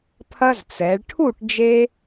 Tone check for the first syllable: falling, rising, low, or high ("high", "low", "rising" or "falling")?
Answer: high